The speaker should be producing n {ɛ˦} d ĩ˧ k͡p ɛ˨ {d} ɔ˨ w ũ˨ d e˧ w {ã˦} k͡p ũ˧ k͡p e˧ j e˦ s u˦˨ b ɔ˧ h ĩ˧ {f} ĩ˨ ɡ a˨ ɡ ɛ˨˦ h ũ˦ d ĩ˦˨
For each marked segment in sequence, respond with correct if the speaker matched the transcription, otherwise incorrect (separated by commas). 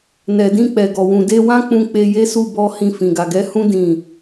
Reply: incorrect, incorrect, correct, correct